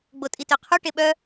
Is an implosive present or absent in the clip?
present